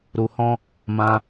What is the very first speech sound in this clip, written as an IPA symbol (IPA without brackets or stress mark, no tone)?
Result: ɾ